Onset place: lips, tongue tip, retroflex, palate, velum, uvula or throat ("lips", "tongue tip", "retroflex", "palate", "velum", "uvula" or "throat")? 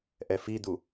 throat